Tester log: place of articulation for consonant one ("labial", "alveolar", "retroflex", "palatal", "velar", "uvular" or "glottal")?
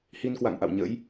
glottal